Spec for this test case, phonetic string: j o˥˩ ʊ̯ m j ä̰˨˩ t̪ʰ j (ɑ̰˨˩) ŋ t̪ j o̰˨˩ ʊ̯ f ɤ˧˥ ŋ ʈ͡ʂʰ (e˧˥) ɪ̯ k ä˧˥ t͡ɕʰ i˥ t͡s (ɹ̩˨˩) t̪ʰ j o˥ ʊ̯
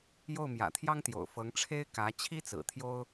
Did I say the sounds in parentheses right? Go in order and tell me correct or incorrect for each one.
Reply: incorrect, incorrect, correct

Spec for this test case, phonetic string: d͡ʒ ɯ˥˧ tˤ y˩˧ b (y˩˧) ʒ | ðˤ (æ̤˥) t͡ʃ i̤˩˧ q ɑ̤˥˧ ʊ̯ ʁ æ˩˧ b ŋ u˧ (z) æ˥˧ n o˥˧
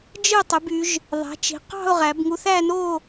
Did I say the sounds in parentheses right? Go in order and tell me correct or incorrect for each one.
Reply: correct, incorrect, incorrect

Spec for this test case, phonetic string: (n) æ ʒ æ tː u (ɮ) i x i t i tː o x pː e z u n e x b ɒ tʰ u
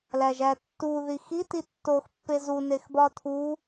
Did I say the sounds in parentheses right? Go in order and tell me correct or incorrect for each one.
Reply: incorrect, incorrect

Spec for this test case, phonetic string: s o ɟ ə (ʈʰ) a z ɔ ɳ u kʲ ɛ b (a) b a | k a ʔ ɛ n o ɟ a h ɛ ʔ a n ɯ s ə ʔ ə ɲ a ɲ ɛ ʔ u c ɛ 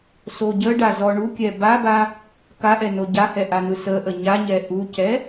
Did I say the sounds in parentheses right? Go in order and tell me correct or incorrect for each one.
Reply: incorrect, correct

